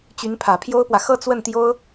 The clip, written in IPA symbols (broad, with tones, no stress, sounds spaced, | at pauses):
t͡ɕ y˧˥ n pʰ ä˨˩ pʰ j o˥ ʊ̯ p w ä˨ x ɤ˥˧ t͡s w ə˥˩ n t̪ j o˥ ʊ̯